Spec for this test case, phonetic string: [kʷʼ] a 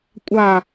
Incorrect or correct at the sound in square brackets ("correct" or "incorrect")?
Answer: correct